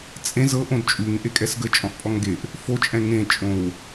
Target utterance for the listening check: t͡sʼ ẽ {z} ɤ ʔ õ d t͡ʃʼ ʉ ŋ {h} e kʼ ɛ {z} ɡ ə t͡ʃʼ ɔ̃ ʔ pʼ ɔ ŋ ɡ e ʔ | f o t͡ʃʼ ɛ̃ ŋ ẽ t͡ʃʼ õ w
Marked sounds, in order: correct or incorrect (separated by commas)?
correct, incorrect, incorrect